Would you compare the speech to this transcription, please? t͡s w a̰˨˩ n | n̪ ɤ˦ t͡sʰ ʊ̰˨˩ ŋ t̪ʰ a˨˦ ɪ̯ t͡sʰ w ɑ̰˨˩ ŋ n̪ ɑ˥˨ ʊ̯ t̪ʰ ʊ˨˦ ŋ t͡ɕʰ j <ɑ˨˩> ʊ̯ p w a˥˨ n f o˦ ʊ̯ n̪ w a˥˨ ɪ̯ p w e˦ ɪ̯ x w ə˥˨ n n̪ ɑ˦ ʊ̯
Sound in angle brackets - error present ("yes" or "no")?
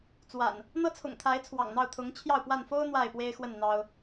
yes